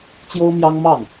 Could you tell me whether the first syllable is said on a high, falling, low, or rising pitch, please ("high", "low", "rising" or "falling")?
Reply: high